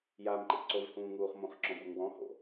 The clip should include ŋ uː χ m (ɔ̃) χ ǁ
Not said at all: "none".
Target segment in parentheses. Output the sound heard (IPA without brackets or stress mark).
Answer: õ